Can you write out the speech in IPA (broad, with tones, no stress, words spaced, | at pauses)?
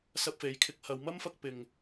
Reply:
sɐ˧p̚fe˨˧jkʰɪ˧k̚hɐ˨˧w mɐ˥mfɐ˧k̚ pɪ˨ŋ